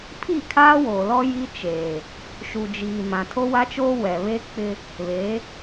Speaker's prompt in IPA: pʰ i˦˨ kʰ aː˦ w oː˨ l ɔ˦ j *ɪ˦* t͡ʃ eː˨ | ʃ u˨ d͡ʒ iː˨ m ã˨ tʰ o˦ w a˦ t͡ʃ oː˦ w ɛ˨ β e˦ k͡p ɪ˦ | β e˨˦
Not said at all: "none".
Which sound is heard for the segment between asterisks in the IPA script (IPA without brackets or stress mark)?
i˦